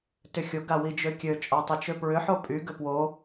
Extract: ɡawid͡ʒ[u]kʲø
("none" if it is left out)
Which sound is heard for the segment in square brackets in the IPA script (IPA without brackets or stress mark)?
ø